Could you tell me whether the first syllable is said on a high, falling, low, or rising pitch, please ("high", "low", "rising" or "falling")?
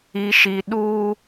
low